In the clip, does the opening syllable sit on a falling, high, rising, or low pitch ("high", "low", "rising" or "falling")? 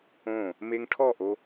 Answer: falling